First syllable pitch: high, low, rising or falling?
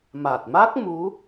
low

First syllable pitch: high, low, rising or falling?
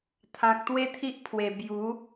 low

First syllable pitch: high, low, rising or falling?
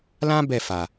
high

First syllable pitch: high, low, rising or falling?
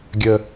high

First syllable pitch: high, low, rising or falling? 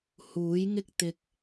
rising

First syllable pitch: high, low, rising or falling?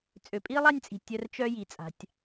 low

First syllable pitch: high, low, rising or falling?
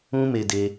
high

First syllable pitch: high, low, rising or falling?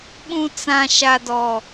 low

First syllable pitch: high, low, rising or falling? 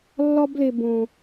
high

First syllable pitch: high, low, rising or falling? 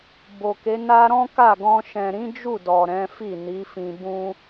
low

